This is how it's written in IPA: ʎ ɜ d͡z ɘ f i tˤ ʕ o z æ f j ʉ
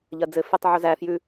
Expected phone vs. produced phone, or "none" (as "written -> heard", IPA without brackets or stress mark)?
none